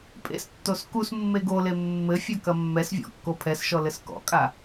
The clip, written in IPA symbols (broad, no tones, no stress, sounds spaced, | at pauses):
pʼ ḛ s tː o s k u s mː e ɡ o l e mː ɘ fʲ ɐ k ɐ mː ɛ s vʲ ɔ̰ kː o pʰ ɛ s ʃ ɔ l ɘ s k ɔ̰ kʼ a